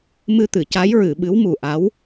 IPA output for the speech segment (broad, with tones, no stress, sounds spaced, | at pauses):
m ɨ˧ t̪ ɨ˨˩˨ c a˧˥ j ɹ ɨ˨˩˨ ɓ ɨ˧˥ w m u˨˩ ʔ a˧˥ w